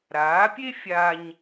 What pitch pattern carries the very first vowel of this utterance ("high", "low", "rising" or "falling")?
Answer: rising